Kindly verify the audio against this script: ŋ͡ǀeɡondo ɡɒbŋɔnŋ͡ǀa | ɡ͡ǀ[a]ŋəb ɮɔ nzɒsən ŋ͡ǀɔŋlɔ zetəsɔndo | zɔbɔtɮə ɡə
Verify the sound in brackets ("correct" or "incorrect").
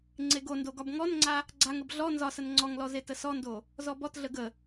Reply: correct